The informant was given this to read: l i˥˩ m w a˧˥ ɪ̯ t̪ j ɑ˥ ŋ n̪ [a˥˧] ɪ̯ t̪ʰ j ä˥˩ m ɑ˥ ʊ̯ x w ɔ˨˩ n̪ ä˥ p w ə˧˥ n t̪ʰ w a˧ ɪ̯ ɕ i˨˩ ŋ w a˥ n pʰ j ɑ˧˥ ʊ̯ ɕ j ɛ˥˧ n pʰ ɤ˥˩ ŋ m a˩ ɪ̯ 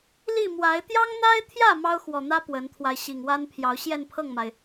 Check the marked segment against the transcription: incorrect: a˥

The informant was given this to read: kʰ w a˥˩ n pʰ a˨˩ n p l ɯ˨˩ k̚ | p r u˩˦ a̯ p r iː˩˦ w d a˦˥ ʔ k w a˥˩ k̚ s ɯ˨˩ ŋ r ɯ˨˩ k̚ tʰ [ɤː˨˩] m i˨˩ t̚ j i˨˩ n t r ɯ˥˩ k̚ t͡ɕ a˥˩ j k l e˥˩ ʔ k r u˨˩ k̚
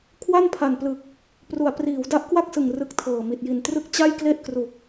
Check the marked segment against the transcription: correct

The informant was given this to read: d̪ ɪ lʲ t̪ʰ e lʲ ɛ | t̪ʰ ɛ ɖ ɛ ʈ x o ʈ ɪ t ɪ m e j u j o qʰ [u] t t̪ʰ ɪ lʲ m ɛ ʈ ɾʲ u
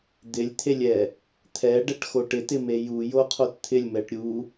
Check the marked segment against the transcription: incorrect: o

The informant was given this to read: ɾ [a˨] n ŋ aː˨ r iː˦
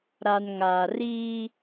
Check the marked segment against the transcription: correct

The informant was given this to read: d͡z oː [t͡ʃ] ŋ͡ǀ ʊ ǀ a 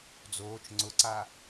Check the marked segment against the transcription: correct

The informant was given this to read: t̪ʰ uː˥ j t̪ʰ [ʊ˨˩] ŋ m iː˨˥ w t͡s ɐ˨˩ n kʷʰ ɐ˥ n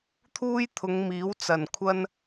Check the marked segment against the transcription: incorrect: ʊ˨˧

